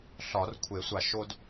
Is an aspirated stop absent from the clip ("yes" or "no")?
no